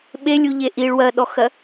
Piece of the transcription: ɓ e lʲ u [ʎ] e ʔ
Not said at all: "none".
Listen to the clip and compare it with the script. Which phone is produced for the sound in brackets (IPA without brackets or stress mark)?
ʎ